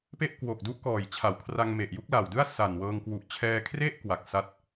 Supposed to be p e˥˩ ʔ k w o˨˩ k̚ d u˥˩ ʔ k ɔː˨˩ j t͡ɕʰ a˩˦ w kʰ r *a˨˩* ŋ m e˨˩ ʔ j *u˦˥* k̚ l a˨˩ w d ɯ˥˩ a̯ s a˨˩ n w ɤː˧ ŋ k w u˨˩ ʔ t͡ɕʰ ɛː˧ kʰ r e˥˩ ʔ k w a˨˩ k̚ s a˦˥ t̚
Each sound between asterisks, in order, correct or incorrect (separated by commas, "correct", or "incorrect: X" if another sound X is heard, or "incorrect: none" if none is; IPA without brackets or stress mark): incorrect: a˧, correct